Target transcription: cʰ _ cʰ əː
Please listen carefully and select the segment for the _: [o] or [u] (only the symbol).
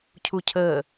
u